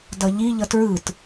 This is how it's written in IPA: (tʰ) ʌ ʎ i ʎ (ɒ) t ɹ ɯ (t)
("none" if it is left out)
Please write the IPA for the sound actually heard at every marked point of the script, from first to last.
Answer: d, ʌ, t

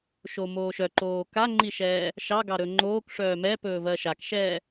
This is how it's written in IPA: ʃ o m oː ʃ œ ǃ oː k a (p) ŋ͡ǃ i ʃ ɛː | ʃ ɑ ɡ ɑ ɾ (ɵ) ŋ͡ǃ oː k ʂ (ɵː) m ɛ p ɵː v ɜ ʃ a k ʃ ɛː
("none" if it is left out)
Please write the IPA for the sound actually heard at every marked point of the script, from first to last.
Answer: none, ɵ, œː

